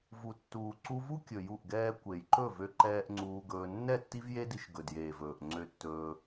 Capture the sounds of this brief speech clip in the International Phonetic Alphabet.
v u˨ tː uː˨ ǀ u˧ v u˦ kʲ ɵ˨ j u˦˨ ʔ ɡ ɛː˦ kʷ e˨ j ǃ ɵ˦˨ v ø˦ ǃ ɛː˦ ʔ ŋ͡ǀ uː˧ ɡ ɵː˧ nː ɛ˦˨ tː i˦ v j e˦ d i˧ ʃ ɡ ɵ˨ d j eː˨ v ɵː˨ ʔ ŋ͡ǀ ø˦ tː ɵː˦

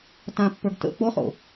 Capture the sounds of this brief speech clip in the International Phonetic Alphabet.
t ã pː ə˞ ɡ t ə̰ k͡p o χ o̰

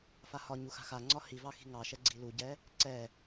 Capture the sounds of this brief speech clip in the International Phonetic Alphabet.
f a h ɒ ɲ u x a̤ x a ŋ͡ǀ ɒ h i v ɑ x i̤ ŋ ɑ ʃ ɛ ɡ͡ǀ i l u ɟ ɛ | ǀ ɛ

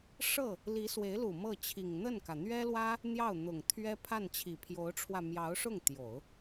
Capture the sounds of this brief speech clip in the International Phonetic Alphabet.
ʂ ɤ˥˩ | l i˧˥ s w e˧˥ ɪ̯ l u˨˩ m ɤ˥˩ t͡ɕʰ i˨˩ ŋ n̪ ə˥˩ n k ä˩ n̪ ɥ ɛ˥ l w ä˥ | n̪ j ɑ˥˩ ʊ̯ n̪ ʊ˨˩ ŋ t̪ʰ ɥ ɛ˥ pʰ a˥˩ n t͡ɕʰ i˨˩ pʰ j o˧˥ ʊ̯ ʈ͡ʂʰ w ä˧ m j ɑ˧˥ ʊ̯ ʂ ʊ˥˩ ŋ t̪ j o˨˩˦ ʊ̯

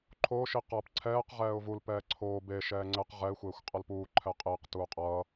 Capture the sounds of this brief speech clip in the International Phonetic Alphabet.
ǃʰ o ʃ i q ʌː p ǀʰ ɛː q ʁ ɛː ʊ̯ v u l p ɛː ǀʰ oː b e ʃ ɛː ŋ͡ǀ ɛ q ʁ ɛ ɪ̯ xʷ eː xʷ qʼ ʌ l p uː ǃʰ ɛ qʼ eː q t uː qʼ ʌː

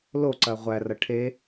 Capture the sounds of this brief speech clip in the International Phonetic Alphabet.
l o ǀ ɐ ʁʷ æ r ɐ ʈʰ e

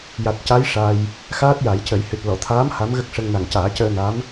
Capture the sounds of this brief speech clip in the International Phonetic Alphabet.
j a˨˩ t̚ c a˧˥ j ʂ a˧ j | x aː˦˥ t̚ j a˨˩˦ j c ə˨˩˦ j h ɨ˨˩ t̚ l ɔ˨˩˨ t̪ʰ aː˧˥ m h a˧˥ m ɣ ə˦˥ k̚ ʂ ə˧ ŋ n a˨˩ ŋ c aː˨˩˦ c əː˧ n a˧˥ m

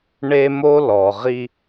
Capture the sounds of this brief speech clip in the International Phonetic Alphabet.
ɳ e˦ m o˦ l ɔ˨ ʁ i˦

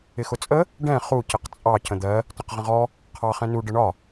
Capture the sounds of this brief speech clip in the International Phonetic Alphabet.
ɪ x ʊ t͡sʼ ə | ɖ ɛ̃ χ u c ɪ q t͡sʼ ɑ c ə̃ d̪ ɜ | t ə̃ q ʁ ə̃ ʁ ɔ | qʰ ɑ χ ɛ̃ n u ɖ ə ɳ ɒ

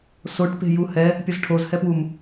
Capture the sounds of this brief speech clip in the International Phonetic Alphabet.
s o ʈ p e̤ j u h ɛ | pʲ ʌ z ʈʰ o z h ɛ p w u m

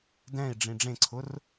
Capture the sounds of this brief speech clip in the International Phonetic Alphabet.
d ɛ̃ i̯ ɖ͡ʐ ĩ ɖ͡ʐ ẽ ǀʰ ʊ r

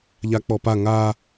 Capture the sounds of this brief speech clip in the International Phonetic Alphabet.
ʎ a k͡p ɔ p a ŋ a

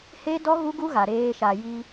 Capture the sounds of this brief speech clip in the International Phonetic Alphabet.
h e˦ d ɔ˦ ɣ u˦ ɡ u˦ ɣ a˨ ɾ eː˦ ʃ a˨ j i˦

